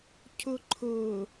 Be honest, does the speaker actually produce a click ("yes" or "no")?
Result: yes